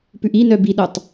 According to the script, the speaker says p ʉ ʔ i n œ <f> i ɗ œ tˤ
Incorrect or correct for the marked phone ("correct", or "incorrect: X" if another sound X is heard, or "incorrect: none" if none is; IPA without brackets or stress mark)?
incorrect: b